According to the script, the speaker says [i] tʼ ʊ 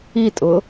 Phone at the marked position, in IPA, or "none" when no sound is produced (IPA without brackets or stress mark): i